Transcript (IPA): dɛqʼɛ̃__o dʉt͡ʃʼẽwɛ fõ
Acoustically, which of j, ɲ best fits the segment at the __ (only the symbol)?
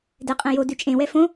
j